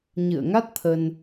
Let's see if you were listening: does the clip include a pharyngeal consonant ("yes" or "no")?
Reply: no